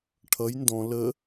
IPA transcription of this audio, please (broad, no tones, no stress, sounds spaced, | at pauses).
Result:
ʈʰ ʌ j n d ɔ̃ l ə